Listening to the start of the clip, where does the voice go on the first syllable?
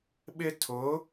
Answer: high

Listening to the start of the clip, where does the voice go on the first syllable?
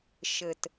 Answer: low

